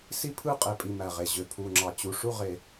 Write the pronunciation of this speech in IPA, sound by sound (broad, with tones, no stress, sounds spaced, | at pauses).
s i˥˨ pʰ ɯ˥˨ qʼ e˨˩ pʼ i˨˩ m æ˨˩ ʁ e˨˩ ʑ ø˨˩ pʰ u˨˩ ŋ͡ǁ ɑ˨˩ t͡ɕ u˨˩ ʂ u˥˨ ʁ e˨˩